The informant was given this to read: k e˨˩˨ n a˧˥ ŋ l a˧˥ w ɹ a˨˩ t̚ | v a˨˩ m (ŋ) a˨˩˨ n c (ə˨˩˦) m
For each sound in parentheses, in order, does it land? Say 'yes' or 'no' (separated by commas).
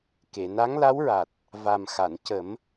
no, yes